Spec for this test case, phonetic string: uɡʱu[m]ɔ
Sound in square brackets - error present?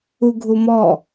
no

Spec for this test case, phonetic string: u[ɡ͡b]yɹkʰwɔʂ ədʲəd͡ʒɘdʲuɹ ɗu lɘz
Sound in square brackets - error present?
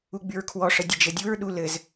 no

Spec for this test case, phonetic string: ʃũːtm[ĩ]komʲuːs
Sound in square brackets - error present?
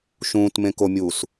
yes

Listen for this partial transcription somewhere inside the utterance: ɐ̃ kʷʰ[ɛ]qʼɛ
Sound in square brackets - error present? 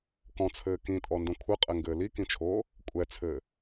yes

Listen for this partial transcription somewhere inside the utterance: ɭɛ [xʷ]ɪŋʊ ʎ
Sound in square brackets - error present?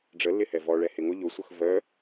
yes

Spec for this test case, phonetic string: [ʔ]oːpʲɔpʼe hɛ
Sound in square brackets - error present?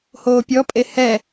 yes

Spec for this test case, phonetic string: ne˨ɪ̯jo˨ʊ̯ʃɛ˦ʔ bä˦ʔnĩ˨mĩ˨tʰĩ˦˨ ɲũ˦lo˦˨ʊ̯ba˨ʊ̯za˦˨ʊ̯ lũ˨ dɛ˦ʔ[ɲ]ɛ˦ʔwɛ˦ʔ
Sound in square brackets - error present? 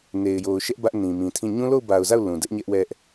no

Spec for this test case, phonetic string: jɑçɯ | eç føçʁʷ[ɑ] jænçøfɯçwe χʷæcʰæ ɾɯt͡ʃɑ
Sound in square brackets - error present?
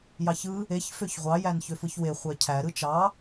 no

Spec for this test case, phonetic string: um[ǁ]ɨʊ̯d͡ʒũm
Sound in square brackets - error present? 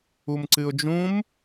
yes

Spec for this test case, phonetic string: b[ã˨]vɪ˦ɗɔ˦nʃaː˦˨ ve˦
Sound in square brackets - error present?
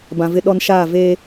no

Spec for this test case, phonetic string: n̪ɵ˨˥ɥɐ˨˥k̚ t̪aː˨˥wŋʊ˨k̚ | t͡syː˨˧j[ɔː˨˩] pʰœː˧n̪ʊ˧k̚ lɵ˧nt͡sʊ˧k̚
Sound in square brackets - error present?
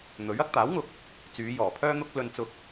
no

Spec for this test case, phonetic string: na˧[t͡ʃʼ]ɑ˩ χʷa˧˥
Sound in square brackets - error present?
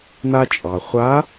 no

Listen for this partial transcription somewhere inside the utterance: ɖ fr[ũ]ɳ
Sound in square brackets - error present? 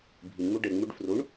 yes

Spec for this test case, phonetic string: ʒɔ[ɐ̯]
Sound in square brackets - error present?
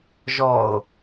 yes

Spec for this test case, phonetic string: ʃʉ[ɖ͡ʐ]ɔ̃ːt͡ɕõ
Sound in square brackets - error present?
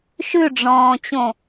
no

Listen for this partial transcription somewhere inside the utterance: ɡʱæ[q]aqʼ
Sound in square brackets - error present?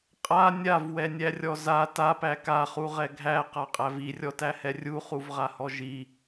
no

